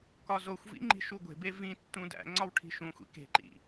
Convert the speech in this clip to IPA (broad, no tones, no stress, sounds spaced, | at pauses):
k ɒ z o xʷ v ḭ ŋ͡ǃ i̤ ʃ u ɡʷ e̤ b e v ĩ tː ũ d æ̰ ŋ͡ǀ ɒ w ʈʰ i̤ ʃ ũ xʷ ḭ k e̤ ǃ ḭ